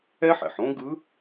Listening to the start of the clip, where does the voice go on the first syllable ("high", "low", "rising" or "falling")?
high